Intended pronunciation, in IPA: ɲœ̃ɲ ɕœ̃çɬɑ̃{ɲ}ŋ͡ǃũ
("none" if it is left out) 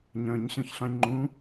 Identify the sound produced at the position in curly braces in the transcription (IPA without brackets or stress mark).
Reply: ɲ